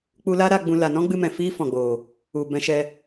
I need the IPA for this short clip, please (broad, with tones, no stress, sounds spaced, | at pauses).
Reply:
k͡p u˦ l aː˦ ɾ a˧ ɡ͡b ũ˧ l a˨ n ɔ̃˦ ɡ͡b ɨ˧ m ɛ̃˨ f iː˦ f ɔ̃˨ ɡ͡b oː˨ | u˨ b ɛ̃˧ ʃ ɛ˧